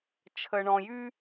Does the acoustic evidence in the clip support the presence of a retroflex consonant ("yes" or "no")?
yes